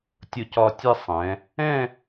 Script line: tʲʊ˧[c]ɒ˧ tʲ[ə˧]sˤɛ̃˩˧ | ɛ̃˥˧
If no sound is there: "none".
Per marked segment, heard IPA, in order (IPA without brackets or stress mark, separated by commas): c, ɛ˧